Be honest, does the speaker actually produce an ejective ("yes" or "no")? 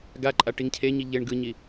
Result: yes